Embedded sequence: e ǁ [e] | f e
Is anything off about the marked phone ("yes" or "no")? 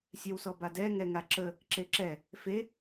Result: yes